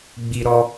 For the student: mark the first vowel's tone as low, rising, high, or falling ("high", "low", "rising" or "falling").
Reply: high